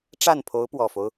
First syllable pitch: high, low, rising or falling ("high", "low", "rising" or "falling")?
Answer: falling